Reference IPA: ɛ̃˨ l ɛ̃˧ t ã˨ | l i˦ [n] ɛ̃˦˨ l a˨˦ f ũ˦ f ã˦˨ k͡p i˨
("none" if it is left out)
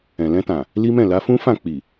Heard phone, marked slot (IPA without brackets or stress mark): m